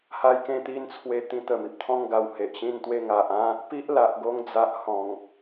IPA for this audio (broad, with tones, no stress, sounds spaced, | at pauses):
h a˧ j k ẽ˧ t̪ i˧ n t͡sʰ w e˧ t̪ ĩ˧ t̪ ə˨˩ m i˨ p̚ t̪ʰ ɔ̃˦ ŋ ɡ a˧ w h e˨ ʔ ɕ ĩ˥˧ n t̪ w e˦ ŋ a˨ ʔ ã˦ | p i˦ ʔ l a˨ ʔ ɡ o˧ ŋ d͡z a˨ ʔ h ɔ̃˨˩ ŋ